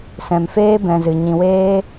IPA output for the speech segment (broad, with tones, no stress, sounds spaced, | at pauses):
s ɛ̃˨ m f eː˦ b ɛ̃˨ z ɨ˨ ɲ ĩ˨ w eː˦